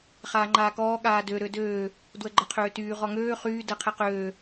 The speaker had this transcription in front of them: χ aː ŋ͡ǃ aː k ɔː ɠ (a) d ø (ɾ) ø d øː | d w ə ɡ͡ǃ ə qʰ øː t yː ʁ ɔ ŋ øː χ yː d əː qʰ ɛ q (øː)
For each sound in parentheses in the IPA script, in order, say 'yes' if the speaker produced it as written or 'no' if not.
no, yes, yes

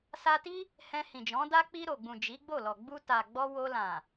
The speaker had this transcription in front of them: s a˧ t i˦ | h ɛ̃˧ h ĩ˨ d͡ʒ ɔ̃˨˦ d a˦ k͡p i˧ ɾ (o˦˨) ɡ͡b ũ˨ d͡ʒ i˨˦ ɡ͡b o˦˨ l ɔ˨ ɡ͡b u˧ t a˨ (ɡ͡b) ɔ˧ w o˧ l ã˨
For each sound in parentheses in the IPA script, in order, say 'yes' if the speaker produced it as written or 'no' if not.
no, yes

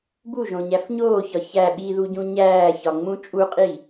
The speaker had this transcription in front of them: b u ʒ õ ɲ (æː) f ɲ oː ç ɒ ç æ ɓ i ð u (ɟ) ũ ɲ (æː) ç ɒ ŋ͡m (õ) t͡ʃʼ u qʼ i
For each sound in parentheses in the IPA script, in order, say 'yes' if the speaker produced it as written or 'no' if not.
no, yes, yes, no

